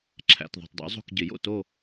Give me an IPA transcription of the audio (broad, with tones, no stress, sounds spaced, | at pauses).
ǁʰ æ̰˨ t ðˤ o̤˨ tˤ dˤ o̰˨˦ zˤ o̤˦˨ k ɟ ɪ˨˩˦ j o̰˦˨ t o˦˨